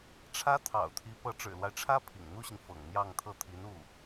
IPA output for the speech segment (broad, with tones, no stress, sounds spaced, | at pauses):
ʈ͡ʂʰ ä˥ t̪ʰ ɑ̰˨˩ ʊ̯ t̪ʰ i˧˥ p ɤ˧˥ ʈ͡ʂ ɻ̩˨˩ l w a˦ ɪ̯ ʈ͡ʂʰ ä˥ pʰ ḭ˨˩ ŋ n̪ u˥ ɕ i˨ ŋ f ɤ̰˨˩ ŋ n̪ j ɑ˥˧ ŋ t̪ʰ ɤ˥˩ t̪ʰ i˧˥ n u˥˩